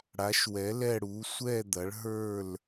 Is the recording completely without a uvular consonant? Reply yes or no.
yes